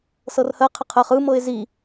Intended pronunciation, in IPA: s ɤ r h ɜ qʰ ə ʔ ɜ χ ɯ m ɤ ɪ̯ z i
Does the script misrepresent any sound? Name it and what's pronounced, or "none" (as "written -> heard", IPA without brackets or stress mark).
ʔ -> qʰ